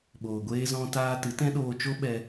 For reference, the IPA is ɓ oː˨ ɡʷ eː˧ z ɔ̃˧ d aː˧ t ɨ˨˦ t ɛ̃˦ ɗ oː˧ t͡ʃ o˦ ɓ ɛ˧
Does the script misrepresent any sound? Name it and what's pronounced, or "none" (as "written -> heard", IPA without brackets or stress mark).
d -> t